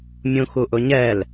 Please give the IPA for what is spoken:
mʲ ũ x u ʔ ʊ ɲ ɛ l

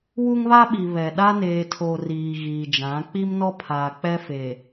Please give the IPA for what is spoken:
w u˦ ŋ β a˦ ɓ i˨ β ɛ˨ ɗ a˦ n eː˨ tʰ oː˨ r iː˨ ɣ iː˨ d͡ʒ ã˨˦ k͡p i˦ m n ɔ˦ pʰ aː˨ k͡p ɛ˦ f e˨

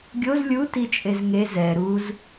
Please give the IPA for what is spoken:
ɡʲ o z lʲ u t i t͡ʃʼ e z ŋ e z ɛ ɾ u z

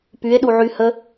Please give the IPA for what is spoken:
p y e̯ ɗ u ʕ y h ə

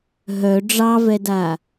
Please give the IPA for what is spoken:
ɦ œ ɖ͡ʐ ɑ v ɛ d a

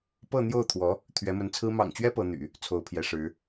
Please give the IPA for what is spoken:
p ɤ˥˧ n̪ j o˥˩ ʊ̯ t̪ʰ w ɔ˧˥ | t̪ʰ ɥ ɛ˧˥ m ə˧˥ n t͡sʰ ɹ̩˥ m ɑ̰˨˩ ŋ t͡ɕ ɥ ɛ˥ p ɤ˧˥ n̪ y̰˨˩˦ | t͡sʰ o˧˥ ʊ̯ pʰ j ɛ˧˥ ʂ ɻ̩˧˥

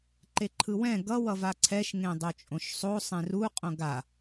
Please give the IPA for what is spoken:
ǃ e ǃʰ ɯ w ɛ̃ ɡ ʌ w ʌ v a ǀʰ ɛ ʃ ŋ ẽ dˤ o t͡ʃʼ õ ʃ sˤ o sˤ ẽ r u qʼ õ ɡ a

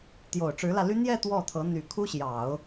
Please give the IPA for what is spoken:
t̪ j o˨˩ ʊ̯ ʈ͡ʂ ɻ̩˧˥ l ä˧ l y˥ n̪ j ɛ˥˧ t̪ w ɔ˥˩ t̪ʰ ɤ˧˥ n̪ y˨˩ kʰ u˥ ɕ j ɑ˨˩˦ ʊ̯

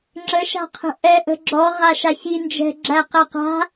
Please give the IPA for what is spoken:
ŋ͡ǁ ə ʃ a̤ qʰ ə̤ ʔ ɛ ʔ ə̤ ɡ͡ǁ ɔ ʁ a ʃ a ç i n d͡ʒ ɛ̤ ɡ͡ǁ æ q æ q a̤

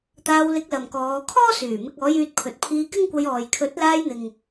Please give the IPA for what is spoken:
t̪ aː˧ w l ɪ˧ k̚ l ɐ˨ m k ɔː˨˧ kʰ ɔː˥ s yː˨˩ m ɪ˧ k̚ ɔː˨˥ j yː˧ t̚ pʰ ɵ˨ t̚ pʰ iː˧ k ɪ˥ ŋ kʷ ɐ˧ j ɔː˨ j kʰ ɵ˨˥ t̚ l aː˧ j n̪ ɪ˨ ŋ

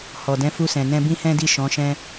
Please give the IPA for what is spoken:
h ɔ˨ d ɛ̃˨˦ f u˧ s ɛ̃˨ n ɛ̃˧ b ĩ˦ h ɛ̃˦ d i˦˨ ʃ ɔ̃˨˦ ʃ ɛ̃˦

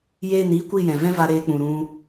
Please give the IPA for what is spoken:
j eː˦˨ n iː˦ kʷ i˦˨ j ɛ̃˨ v ɛ̃˦ v a˧ ɾ eː˧ k͡p ũ˨ ɾ ũ˧

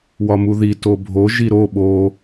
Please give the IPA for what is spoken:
w ɒ m u ð i t o bʱ o ʒ i ɾ o ɓ o

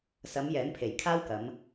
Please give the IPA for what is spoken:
s ɐ˨˧ m j ɛː˨˥ n pʰ e˨˩ j kʰ aː˥ w k ɐ˨˧ m

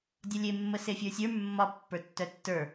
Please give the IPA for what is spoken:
dʲ ɒ lʲ e mː ə s e fʲ ə˞ sʲ ə˞ mː ɒ pː ə˞ tː œ tː ə˞

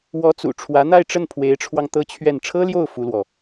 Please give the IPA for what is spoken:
w ɔ˧˥ t͡s ṵ˨˩ ʈ͡ʂʰ w ä˧˥ n̪ a˥˧ ɪ̯ ʈ͡ʂ ə˥˩ n pʰ w e˧˥ ɪ̯ ʈ͡ʂʰ w ɑ˧ ŋ t̪ ɤ˥ t͡ɕʰ ɥ ɛ˥˩ n ʈ͡ʂʰ ɤ˥ l j o˥˩ ʊ̯ f u˥ l w ɔ˨

